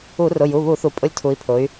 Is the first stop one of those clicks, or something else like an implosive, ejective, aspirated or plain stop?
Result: ejective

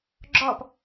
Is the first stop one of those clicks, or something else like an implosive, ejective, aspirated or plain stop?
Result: click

